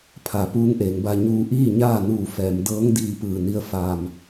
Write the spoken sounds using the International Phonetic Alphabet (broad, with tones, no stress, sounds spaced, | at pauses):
pʰ a˩ p uː˧˥ ŋ ʔ eː˩˧ ŋ b a˧ ɲ uː˧ ʔ iː˥˨ ɲ aː˥˨ n uː˧˩ f ɛː˩˧ m d ɤː˧˥ ŋ d iː˧ p ɯː˧˩ n i˧ ə̯ f aː˧˩ m